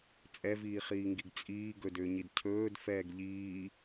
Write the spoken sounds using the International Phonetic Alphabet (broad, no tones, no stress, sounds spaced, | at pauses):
t͡sʼ ɛ v iː χ iː ŋ ɡ i ɡ t͡sʼ iː ɡ ɵ d ʏː ɲ i d cʰ ɵː d f ɛː ɡ ʎ iː